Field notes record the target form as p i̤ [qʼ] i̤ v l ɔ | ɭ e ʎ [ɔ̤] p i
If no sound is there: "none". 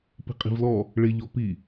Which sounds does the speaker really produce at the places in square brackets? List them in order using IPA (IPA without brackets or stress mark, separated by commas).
qʼ, ɔ